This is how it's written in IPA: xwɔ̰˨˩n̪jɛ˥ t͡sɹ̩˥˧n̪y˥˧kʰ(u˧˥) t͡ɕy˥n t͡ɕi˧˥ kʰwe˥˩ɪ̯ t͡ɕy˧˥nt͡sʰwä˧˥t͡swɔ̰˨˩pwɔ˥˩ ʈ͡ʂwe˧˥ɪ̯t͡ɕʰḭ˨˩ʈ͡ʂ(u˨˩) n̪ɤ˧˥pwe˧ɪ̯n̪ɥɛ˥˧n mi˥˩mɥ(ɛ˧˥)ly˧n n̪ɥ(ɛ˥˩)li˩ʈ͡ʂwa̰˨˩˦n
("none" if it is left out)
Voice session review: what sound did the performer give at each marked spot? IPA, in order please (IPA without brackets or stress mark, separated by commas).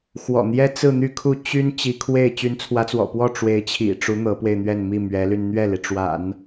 u˥˩, u˧˥, ɛ˧˥, ɛ˥˩